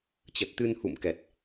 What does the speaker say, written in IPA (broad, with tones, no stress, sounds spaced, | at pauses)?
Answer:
t͡ɕ ə˨˩ t̚ t̪ ɨ˧ n h ṵ˧˨ m k ɛ˨˩ t̚